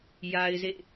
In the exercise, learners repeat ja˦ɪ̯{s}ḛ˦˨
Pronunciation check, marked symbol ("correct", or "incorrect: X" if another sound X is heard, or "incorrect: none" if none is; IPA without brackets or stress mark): incorrect: z